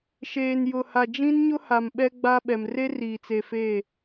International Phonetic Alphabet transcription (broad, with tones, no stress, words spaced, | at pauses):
ʃeː˨njʊ˨ha˨ d͡ʒĩ˦nɲʊ˦ha˨m ɓɛ˦ɡ͡ba˦ ɓɛ˨m re˦riː˨t͡se˨ fe˦˨